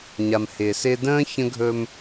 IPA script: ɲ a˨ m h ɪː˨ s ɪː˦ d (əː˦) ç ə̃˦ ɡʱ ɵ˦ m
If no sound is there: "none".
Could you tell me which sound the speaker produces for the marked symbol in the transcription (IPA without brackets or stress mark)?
ə̃ː˦